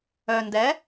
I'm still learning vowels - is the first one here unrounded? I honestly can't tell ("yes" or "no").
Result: no